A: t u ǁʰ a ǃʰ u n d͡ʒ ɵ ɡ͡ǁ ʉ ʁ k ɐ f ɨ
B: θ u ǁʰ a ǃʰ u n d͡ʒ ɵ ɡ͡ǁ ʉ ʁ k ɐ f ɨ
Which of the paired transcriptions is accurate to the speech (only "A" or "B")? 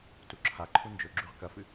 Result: A